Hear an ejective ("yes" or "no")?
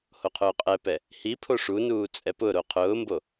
yes